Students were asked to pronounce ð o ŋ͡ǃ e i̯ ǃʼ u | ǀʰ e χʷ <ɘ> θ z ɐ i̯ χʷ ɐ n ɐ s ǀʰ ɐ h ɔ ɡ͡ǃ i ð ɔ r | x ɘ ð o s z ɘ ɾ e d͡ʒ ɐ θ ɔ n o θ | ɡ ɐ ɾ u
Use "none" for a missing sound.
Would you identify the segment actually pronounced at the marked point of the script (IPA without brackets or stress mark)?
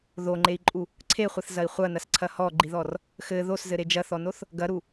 ɘ